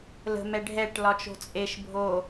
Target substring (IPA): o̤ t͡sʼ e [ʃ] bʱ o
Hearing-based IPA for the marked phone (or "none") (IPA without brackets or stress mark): ʃ